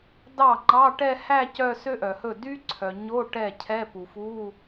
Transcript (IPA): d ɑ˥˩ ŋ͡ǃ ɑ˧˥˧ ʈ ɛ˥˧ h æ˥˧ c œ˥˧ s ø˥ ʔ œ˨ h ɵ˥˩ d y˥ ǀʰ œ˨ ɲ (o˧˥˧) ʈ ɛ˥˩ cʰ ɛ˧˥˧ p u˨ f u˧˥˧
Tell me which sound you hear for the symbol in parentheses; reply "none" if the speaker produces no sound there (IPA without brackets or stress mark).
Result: o˧˥˧